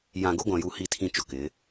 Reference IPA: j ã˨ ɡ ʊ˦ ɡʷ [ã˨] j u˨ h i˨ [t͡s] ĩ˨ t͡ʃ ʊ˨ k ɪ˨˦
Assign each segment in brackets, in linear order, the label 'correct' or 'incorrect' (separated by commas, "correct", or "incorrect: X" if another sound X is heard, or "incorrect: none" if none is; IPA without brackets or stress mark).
correct, incorrect: tʰ